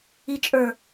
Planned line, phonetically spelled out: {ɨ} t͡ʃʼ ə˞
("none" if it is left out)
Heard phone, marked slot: i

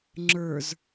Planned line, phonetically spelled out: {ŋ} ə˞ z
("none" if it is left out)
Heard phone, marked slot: ŋ͡ǁ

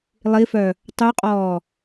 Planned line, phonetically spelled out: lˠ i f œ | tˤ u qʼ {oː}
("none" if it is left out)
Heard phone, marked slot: ɔː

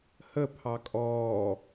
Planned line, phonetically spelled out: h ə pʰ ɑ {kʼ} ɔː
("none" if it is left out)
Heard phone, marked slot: kʼ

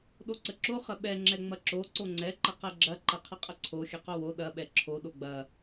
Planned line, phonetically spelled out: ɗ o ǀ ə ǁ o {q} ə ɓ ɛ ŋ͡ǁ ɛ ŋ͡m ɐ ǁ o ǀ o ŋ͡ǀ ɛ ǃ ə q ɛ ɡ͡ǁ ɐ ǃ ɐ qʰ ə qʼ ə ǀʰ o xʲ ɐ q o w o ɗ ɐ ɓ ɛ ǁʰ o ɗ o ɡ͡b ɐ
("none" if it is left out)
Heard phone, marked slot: χ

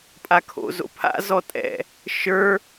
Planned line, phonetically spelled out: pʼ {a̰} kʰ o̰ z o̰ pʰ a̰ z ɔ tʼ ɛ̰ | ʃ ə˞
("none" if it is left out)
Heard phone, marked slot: a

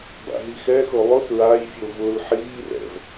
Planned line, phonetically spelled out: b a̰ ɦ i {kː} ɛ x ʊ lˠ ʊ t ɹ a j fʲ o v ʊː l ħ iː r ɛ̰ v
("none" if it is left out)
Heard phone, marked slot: x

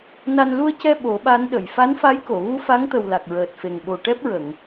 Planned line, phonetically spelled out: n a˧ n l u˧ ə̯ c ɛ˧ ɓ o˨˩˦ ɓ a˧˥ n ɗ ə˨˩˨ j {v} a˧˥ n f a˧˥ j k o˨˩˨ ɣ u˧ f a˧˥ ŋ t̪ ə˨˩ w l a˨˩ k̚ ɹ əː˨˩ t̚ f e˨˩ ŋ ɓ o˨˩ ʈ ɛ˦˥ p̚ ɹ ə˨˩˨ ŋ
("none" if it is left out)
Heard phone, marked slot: f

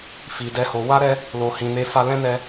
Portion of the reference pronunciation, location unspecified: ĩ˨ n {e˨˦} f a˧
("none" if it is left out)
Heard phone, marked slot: e˨˦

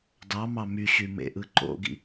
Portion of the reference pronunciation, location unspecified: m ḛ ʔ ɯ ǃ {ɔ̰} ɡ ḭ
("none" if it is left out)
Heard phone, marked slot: o̰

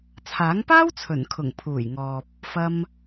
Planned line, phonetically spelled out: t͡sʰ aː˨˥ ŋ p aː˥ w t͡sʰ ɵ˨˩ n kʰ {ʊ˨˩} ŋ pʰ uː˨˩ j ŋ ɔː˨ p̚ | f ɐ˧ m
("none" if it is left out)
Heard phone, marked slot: ʊ˨˩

